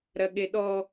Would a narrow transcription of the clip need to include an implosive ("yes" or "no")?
yes